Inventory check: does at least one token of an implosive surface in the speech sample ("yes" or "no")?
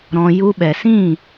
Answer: yes